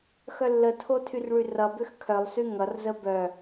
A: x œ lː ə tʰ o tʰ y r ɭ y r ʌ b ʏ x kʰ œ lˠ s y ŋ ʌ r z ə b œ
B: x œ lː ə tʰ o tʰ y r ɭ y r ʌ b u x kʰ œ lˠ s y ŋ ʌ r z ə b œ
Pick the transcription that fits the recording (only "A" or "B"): A